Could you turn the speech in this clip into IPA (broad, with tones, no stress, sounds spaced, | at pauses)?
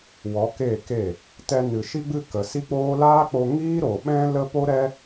w ɔ˨˦ k eː˦˨ k e˦˨ | t ɛ˧ n ɨ˨ ʃ i˧ ɡ͡b ɨ˧ k ə˨ s i˦ k͡p oː˦ l aː˦ k͡p o˧ ŋ iː˦ ɾ o˨ ɓ ɛ̃˦ l ə˦ p o˦ ɾ ɛ˦